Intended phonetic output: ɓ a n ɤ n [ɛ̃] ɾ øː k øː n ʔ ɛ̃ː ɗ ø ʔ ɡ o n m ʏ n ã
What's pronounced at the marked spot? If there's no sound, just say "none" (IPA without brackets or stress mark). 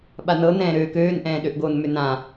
ɛ̃ː